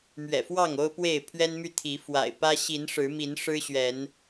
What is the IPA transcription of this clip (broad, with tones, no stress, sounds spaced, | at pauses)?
m ɥ ɛ̰˨˩ f w ɑ˥˨ ŋ o˦ ʊ̯ p w e˥˨ ɪ̯ pʰ ɥ ɛ˦ n m y˥˨ t̪ʰ i˨˦ f w a̰˨˩ ɪ̯ p ä˦ ɕ i˨˦ n ʂ ɻ̩˨˦ m i˨˦ n ʂ ɻ̩˦ ɕ ɥ ɛ˨˦ n